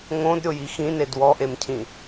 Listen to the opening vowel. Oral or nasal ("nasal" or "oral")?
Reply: nasal